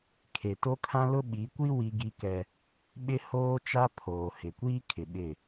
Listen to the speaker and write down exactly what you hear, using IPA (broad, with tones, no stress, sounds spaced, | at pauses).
kʰ e˨ t o˦ kʰ ã˦ l ʊ˦ ɓ i˨˦ kʷ i˦ w i˦ ɡ i˦ k ɛ˦ | ɓ ɪ˦ h oː˦ t͡ʃ a˦ pʰ oː˨ h ɪ˨ kʷ iː˦ kʰ ɪ˨ ɓ ɪ˦˨